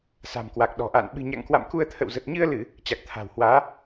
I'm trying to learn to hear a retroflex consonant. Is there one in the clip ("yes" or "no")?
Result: no